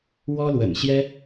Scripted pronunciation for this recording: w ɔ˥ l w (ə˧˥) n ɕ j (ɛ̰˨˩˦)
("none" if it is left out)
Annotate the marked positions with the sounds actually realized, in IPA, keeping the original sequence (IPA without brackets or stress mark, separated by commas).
ə̰˨˩, ɛ˥